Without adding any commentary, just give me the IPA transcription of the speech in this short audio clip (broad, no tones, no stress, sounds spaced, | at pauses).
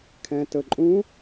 kʰ ɛ̃ t ə ǃʼ ũ